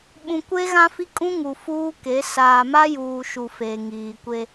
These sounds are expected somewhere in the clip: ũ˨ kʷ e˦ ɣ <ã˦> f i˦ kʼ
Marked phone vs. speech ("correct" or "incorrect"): correct